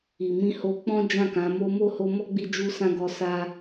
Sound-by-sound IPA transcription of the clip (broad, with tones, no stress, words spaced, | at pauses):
i˨mĩ˧ho˧k͡pɔ̃˦ d͡ʒã˦˨kã˨˦mo˦ mo˦˨ho˧mɔ˦ ɡ͡bi˧d͡ʒu˧sã˧ ɡɔ˧sa˧